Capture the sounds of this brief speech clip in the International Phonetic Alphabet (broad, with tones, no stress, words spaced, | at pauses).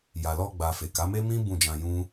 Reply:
ja˨lɔ˧ɡ͡ba˨ fe˨ka˨˦me˦mĩ˦ bũ˦˨d͡ʒã˧jũ˦